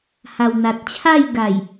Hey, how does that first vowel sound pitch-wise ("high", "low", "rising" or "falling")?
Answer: low